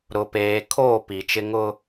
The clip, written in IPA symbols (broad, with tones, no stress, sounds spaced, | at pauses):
ɾ ʊ˨ p eː˨ kʰ oː˦˨ p i˨ t͡ʃ ɪ˦ ŋ ʊ˦